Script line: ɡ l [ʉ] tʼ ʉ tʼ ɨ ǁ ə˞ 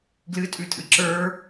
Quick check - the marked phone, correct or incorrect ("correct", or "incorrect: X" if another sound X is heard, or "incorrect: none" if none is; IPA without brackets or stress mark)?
incorrect: ɨ